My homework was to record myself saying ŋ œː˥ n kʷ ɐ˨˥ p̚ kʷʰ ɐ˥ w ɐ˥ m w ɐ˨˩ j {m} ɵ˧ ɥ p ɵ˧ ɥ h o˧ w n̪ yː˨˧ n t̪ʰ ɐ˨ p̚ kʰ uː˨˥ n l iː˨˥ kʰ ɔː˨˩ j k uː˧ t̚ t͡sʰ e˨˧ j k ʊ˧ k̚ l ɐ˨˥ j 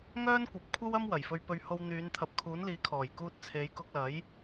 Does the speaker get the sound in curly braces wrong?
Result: yes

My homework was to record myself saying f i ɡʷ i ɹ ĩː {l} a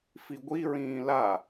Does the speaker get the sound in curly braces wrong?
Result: no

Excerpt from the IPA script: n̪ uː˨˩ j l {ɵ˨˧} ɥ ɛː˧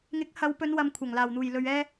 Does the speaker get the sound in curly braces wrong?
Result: yes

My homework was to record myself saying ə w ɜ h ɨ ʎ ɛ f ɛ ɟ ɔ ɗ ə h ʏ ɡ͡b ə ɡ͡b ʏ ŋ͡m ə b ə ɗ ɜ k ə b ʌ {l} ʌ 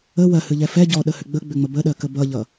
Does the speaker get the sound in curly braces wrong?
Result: yes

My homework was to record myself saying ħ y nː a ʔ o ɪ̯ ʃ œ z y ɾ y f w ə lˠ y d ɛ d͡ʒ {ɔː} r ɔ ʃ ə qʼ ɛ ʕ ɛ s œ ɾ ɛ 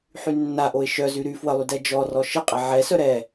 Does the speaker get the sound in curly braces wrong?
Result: yes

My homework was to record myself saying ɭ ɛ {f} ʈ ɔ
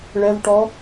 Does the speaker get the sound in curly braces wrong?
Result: yes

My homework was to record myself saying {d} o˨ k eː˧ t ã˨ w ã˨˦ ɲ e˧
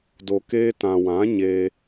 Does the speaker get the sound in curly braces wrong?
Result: no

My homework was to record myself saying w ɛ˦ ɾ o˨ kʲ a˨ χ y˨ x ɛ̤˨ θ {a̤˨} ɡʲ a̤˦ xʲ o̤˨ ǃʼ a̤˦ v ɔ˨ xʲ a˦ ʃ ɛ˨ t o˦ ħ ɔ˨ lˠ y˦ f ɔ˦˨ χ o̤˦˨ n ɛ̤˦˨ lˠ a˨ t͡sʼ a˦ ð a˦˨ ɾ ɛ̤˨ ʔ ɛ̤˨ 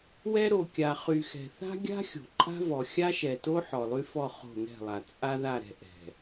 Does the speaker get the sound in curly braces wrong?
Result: yes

